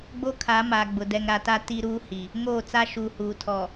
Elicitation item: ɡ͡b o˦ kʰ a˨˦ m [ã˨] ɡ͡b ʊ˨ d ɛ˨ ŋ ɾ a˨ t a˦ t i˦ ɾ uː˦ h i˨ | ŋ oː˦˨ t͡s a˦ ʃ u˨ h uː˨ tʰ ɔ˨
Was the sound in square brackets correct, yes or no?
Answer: no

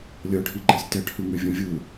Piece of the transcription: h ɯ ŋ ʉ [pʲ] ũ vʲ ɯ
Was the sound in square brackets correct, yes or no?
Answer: no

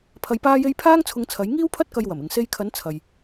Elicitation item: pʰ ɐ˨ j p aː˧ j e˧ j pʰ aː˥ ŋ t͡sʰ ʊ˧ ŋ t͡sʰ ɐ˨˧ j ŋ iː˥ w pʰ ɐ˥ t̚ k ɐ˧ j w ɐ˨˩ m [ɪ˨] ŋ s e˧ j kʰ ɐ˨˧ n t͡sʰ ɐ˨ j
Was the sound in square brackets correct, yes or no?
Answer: yes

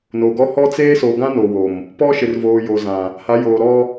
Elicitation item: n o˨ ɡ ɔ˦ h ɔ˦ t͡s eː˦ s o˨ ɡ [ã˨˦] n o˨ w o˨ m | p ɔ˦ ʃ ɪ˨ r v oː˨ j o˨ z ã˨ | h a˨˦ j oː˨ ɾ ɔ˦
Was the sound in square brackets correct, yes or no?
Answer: no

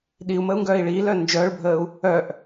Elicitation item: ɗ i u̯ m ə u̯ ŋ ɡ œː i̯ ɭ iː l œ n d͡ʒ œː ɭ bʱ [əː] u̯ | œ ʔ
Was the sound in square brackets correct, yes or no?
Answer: yes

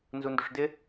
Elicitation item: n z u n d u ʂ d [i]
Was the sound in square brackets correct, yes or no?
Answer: no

